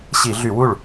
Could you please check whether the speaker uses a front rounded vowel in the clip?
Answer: yes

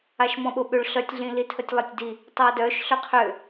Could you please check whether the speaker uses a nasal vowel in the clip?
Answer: yes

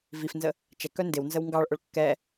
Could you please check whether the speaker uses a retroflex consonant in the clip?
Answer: yes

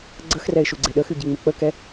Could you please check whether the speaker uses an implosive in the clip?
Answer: yes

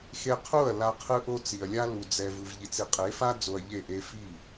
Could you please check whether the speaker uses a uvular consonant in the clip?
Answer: yes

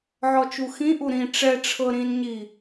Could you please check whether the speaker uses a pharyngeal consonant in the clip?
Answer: yes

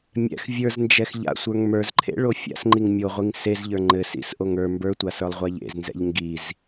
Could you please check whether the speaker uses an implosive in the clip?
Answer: no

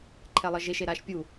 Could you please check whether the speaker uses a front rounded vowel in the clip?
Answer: no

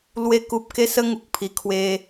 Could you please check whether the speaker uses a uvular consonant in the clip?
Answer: no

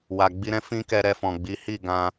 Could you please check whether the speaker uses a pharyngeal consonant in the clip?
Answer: no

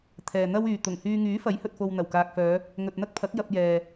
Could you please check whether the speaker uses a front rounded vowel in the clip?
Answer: yes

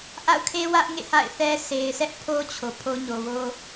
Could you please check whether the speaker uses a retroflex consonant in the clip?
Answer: no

